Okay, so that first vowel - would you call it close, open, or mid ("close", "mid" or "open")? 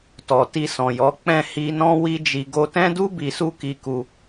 mid